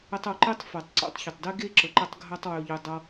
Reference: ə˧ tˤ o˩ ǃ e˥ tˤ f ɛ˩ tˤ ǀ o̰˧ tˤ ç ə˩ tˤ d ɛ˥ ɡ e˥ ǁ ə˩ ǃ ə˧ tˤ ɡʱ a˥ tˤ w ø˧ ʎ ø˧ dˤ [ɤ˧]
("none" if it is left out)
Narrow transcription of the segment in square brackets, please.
ɤ˧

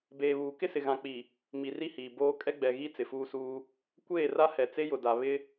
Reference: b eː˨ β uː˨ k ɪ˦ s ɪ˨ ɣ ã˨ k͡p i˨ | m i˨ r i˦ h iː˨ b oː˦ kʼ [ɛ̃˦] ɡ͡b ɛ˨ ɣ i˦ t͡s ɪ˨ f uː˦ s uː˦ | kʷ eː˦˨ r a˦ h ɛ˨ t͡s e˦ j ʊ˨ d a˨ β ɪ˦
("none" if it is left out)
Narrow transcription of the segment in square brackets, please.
ɛ˦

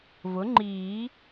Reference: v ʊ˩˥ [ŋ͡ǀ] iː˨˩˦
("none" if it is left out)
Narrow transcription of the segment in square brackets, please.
ŋ͡ǃ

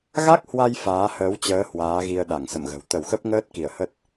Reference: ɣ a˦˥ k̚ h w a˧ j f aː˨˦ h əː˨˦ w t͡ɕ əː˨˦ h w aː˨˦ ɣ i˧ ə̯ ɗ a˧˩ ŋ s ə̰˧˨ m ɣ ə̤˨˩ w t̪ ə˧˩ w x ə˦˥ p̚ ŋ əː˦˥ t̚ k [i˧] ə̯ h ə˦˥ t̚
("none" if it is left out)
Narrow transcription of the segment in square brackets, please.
i˧˩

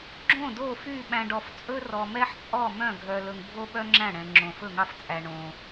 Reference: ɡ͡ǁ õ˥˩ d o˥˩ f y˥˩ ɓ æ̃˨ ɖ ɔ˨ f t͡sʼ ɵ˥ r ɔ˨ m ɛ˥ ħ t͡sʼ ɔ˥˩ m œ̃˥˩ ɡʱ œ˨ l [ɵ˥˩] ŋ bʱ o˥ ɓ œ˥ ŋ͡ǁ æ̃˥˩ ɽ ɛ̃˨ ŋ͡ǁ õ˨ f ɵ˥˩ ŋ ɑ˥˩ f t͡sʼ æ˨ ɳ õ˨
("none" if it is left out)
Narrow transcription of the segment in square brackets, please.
ɵ˨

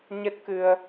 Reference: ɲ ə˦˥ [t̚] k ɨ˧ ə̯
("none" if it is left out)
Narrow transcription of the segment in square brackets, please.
t̚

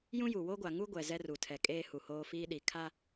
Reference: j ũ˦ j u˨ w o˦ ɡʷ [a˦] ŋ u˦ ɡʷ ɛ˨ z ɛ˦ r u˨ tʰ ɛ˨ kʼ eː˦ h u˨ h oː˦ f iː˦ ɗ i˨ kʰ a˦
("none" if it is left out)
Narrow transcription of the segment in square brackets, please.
a˨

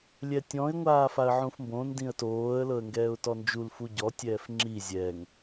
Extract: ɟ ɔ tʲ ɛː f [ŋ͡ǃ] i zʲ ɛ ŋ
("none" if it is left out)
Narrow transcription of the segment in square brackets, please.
ŋ͡ǁ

